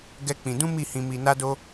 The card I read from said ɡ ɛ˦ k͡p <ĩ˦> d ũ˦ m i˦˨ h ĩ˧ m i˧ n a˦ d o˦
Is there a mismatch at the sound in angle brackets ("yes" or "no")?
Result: yes